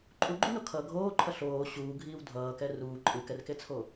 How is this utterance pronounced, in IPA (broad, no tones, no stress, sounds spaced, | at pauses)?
ǃʼ u ɡ͡ǃ u n o kʰ ʌ ɡʱ oː ǃʰ ʌ ɬ oː ɕ uː ɡʱ iː w dʱ ʌː k ɛ r uː ǃʼ ɯ k ɛ r k e t͡sʰ o